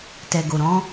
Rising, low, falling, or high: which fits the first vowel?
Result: low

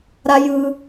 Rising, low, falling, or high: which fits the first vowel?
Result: high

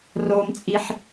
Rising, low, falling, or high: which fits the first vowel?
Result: low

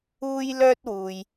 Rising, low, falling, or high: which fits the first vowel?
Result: high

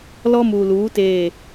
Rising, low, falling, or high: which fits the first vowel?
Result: high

